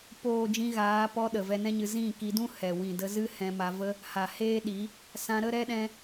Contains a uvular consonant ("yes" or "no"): no